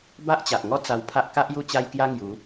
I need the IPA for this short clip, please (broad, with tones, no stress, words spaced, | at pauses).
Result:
ba˦ʔt͡ɕa˨ʔŋɔ˦ t͡sa˧wpʰa˦ʔ ka˦ʔ ju˥˧t͡ɕa˦jkja˦ŋju˨˦